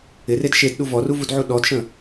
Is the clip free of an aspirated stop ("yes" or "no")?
yes